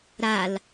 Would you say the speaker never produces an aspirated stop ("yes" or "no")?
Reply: yes